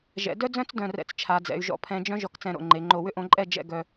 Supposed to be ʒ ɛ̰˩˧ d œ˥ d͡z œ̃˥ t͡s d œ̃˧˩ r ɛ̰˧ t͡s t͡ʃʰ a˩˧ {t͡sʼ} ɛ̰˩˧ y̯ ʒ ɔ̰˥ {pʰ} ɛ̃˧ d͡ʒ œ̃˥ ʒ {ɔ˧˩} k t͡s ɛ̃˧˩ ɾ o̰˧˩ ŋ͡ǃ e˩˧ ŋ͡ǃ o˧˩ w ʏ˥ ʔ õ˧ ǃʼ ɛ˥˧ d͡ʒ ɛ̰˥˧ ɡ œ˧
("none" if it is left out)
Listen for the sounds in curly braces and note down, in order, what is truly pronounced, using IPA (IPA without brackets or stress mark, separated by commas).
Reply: d͡z, pʰ, ɔ˧˩